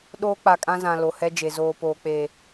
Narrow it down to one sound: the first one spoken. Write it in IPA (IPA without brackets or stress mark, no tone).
ɗ